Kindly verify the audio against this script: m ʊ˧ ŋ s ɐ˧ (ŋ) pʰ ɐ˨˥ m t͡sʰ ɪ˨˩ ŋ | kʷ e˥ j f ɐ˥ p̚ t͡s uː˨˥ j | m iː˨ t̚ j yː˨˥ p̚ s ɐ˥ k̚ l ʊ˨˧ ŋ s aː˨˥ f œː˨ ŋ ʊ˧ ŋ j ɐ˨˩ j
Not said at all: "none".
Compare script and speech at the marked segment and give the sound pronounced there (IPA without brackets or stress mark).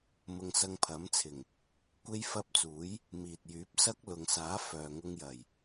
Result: ŋ